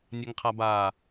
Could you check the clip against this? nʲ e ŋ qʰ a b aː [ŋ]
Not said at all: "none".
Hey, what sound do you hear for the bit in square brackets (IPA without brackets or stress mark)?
none